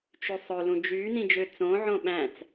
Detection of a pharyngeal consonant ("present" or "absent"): present